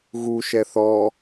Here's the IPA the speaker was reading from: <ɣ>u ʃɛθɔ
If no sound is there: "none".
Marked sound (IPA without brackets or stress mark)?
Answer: ɣ